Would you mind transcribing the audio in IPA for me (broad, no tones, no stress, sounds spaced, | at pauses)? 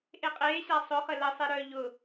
ʔ e qʼ eː ɕ a sˤ ʊ χ ə l ə sˤ e ɾ œ ʎ ʊ